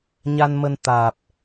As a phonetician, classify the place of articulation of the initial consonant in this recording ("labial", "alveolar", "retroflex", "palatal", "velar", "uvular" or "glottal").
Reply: palatal